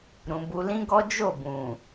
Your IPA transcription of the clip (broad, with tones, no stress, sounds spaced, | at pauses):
ɾ ũ˨ b u˧ l ĩ˦ ɡ ɔ˦ d͡ʒ o˦˨ b ũ˨